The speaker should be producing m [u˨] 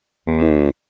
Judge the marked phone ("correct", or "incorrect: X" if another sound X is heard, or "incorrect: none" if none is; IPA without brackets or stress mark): incorrect: ũ˨